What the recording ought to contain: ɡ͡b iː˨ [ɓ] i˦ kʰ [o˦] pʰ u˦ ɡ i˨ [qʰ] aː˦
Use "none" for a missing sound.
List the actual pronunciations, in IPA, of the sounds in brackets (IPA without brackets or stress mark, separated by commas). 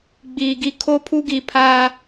ɡ, o˦, pʰ